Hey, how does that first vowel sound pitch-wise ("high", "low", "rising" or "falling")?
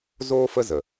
high